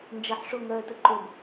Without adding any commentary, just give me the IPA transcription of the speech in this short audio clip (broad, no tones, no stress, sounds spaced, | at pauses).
n d͡ʒ ə ħ ʂ o ŋ œ t ʊ ǃ ʊ b